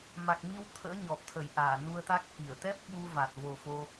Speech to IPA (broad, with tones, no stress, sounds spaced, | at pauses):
m a˨˩ k̚ m i˧ w t̪ʰ ə̰ː˧˥ ɲ ɔ˨˩ p̚ t̪ʰ ə˧˩ j ʔ aː˧˩ n u˧ ə̯ t̪ a˦˥ k̚ ʔ i˧˩ ə̯ t̪ ɛ˦˥ p̚ ɓ u˧ v a˨˩ t̚ v o˨˩ f o˧